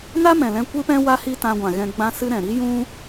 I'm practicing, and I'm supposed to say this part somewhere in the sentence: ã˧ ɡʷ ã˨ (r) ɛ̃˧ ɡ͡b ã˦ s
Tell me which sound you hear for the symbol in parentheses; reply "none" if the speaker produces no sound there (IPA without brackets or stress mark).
ɣ